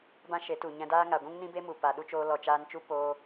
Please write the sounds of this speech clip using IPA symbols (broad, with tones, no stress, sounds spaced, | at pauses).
b ã˦ ʃ e˨˦ t u˨ ɲ ɛ̃˧ d aː˦ ŋ a˨ ɡʷ ũ˦ ŋ n ĩ˦ b e˦ m u˨ p a˨ ɗ u˦ t͡ʃ oː˧ l ɔ˨ t͡ʃ aː˧ n t͡ʃ u˦ p oː˧